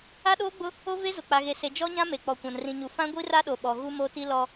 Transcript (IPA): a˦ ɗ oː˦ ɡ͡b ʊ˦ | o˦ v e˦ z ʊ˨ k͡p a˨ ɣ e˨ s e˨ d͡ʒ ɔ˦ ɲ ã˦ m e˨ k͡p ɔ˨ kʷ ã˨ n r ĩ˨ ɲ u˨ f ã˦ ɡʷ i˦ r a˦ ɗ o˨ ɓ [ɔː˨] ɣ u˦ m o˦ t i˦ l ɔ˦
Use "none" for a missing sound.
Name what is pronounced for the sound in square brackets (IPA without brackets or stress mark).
ɔ˨